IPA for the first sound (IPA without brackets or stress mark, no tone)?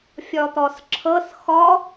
fʲ